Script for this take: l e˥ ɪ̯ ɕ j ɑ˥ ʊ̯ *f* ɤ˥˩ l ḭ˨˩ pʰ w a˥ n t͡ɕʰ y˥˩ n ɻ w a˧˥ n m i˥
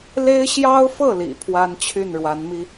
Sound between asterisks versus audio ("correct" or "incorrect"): correct